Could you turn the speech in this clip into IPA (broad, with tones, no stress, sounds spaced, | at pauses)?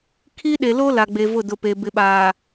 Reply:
kʰ iː˦ ɗ e˨ l o˦ l a˨ ɡ͡b e˨ v ʊ˦˨ d ʊ˨ p e˨ b ɪ˨ ɓ aː˨